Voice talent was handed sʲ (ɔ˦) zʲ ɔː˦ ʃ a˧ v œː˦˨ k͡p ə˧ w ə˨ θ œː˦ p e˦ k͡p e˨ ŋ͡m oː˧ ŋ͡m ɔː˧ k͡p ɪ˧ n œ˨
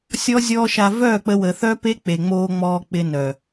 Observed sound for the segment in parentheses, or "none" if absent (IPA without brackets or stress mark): ɔ˦